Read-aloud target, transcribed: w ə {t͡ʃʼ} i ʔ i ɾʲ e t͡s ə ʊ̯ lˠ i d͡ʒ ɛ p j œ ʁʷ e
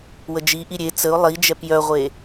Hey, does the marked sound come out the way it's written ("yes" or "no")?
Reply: no